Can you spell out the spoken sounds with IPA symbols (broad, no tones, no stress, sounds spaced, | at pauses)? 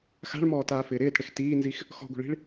x a̤ ɭ m ɔː t aː f ɪː ɾ ɪː t ɽ ɪ x t iː n z i x | x ɔ̤ ɡʷ i̤ ɭ i̤ ɭ